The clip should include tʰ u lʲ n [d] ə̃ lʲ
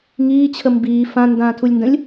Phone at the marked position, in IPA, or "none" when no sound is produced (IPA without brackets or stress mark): d